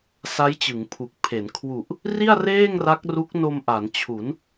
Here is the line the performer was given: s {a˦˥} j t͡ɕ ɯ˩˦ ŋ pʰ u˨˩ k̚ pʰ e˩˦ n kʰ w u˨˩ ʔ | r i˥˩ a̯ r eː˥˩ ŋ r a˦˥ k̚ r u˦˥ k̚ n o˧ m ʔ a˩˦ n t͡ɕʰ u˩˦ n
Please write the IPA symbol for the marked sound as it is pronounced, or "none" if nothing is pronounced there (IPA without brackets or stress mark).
a˦˥